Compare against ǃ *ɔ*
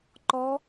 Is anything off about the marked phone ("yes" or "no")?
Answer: no